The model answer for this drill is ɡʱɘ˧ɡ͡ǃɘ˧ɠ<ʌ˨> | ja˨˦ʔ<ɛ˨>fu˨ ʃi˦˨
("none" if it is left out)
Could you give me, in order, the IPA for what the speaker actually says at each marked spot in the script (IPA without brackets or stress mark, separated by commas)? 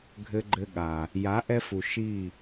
a˨, ɛ˧